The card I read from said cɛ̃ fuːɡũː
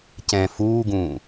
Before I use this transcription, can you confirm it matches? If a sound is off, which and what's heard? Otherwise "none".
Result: none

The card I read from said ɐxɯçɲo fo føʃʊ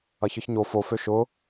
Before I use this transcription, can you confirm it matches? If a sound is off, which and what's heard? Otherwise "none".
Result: x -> ç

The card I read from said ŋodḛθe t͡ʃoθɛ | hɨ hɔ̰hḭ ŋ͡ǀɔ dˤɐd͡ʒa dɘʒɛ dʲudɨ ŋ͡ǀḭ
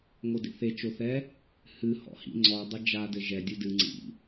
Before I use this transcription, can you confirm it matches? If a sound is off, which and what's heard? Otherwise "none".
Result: none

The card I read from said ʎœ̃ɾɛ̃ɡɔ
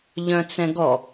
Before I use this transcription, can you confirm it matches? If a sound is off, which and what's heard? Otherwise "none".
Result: ɾ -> t͡s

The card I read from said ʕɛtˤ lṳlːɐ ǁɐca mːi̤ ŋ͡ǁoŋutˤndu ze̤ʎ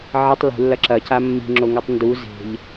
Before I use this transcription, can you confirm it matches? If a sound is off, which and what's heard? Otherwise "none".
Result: none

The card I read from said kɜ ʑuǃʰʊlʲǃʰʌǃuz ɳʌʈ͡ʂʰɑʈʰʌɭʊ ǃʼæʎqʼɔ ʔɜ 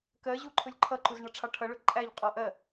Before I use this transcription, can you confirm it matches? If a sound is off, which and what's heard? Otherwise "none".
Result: none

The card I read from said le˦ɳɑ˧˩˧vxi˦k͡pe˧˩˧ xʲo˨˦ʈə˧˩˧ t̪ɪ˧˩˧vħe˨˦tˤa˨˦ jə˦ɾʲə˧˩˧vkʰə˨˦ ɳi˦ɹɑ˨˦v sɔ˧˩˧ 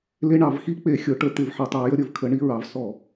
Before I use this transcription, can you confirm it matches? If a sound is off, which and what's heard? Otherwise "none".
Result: none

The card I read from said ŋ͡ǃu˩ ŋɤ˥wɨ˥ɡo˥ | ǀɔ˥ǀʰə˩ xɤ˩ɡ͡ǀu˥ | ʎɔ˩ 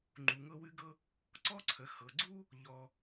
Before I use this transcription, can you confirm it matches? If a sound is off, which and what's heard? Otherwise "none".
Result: o˥ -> ɤ˥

